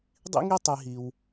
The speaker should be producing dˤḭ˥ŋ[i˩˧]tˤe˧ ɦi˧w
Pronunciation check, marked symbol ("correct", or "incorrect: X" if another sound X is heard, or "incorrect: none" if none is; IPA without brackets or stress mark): incorrect: i˥